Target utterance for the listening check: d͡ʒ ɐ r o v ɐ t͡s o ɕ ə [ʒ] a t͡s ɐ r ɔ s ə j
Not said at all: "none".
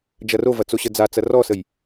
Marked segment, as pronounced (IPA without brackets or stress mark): d͡z